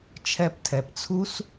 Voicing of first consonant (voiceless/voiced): voiceless